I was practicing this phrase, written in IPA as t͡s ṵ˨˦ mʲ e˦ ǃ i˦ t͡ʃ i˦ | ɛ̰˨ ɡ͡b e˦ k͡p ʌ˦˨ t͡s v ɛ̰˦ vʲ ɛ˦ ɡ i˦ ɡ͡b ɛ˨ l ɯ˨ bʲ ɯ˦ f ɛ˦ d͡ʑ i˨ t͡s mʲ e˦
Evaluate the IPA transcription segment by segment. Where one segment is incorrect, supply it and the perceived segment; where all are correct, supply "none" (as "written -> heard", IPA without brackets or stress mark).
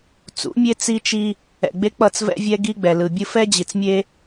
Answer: ǃ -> t͡s